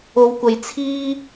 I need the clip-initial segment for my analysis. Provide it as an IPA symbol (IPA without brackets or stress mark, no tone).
o